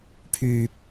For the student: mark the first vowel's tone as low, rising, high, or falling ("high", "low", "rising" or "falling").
high